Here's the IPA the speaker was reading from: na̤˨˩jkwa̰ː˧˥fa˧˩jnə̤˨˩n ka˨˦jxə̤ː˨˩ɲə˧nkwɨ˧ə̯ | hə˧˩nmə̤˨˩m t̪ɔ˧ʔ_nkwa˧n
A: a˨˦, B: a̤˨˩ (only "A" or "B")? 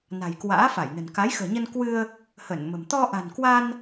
B